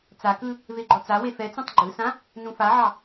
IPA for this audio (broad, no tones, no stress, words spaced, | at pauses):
t͡sakɯ | veɡ͡ǃɔt͡sawe fɛt͡sũtˤ ɡ͡ǃɯsã | nũfaʕɑ